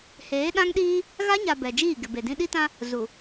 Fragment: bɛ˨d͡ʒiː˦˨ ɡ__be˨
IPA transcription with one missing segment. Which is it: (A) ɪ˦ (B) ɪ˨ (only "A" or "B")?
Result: B